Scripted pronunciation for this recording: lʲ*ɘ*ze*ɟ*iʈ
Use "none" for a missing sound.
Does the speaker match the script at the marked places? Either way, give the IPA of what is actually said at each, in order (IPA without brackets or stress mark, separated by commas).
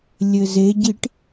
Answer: ɘ, ɟ